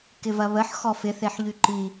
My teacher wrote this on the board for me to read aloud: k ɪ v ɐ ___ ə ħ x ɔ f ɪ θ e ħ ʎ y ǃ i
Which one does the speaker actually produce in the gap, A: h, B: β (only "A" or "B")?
B